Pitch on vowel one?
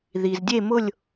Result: low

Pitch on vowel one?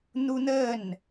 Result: high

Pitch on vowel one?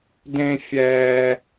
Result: high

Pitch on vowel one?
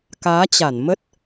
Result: rising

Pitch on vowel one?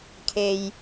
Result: low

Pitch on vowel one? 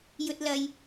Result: high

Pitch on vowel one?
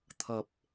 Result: low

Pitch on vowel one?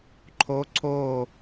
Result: rising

